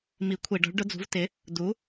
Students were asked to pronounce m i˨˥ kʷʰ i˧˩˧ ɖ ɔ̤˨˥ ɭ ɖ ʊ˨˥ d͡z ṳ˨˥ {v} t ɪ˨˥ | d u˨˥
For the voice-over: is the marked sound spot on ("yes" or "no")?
yes